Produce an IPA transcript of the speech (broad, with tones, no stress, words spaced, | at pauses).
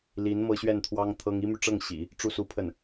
li˧˥n mɤ˥ɕɥɛ˥˩nt̪ʰwɑ˥ŋ t̪ʰɤ˥ŋ i˥my˨ʈ͡ʂɤ˥˩ŋ ɕḭ˨˩˦ | ʈ͡ʂu˥˩su˥pʰə˥˩n